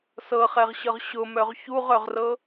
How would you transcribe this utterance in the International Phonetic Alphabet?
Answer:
s ɤ χ ɛ ʁ ɕ ɤ ʁ ɕ ʊ m œ ʁ ç u ʁ œ ʁ r ɤ

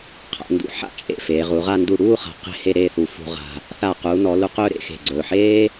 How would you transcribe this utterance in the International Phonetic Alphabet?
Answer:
qʰ a̰˩˧ n d ṵ˩˧ ħ a̰˧ t͡ʃʼ ḛ˧˩ f eː˩˧ ʁ u˩˧ ʁ a˥˧ n d u˧˩ ɽ uː˥˧ χ a̤˩˧ q e̤˥˧ h e˥˧ ɾ eː˥˧ θ u˧˩ f ṳ˧ ʁ a̤˧ | θ a˧˩ q uː˩˧ n ɔ˩˧ l u˧ q ɵː˥˧ ɾ ḛ˧ x e̤˧˩ ɡ͡ǀ ɵː˧˩ ħ eː˥

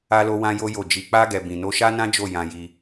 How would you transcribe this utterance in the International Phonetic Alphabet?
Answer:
a˦ l o˦ w ã˦ j o˦ j o˦˨ d͡ʒ i˧ k͡p a˦ ɡ ɛ˧ b ĩ˧ n o˦ ʃ a˦ n ã˦ d͡ʒ o˦˨ j ã˧ j i˧

